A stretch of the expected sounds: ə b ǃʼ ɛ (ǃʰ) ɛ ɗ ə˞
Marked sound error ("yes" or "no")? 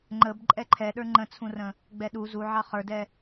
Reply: no